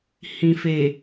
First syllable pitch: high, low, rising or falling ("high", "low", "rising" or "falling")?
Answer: low